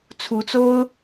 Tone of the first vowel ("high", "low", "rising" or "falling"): rising